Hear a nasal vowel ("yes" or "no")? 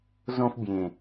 yes